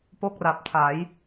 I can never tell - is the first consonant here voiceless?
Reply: yes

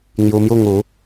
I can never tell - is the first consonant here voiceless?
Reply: no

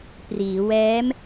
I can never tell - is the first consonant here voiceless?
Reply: yes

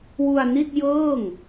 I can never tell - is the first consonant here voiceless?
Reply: no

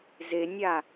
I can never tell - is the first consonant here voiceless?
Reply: no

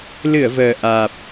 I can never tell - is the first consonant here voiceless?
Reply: no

